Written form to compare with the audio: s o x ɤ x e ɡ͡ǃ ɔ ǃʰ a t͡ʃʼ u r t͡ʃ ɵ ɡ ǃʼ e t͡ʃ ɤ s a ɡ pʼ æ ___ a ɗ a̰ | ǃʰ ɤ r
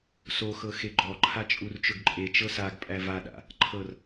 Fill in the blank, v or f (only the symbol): v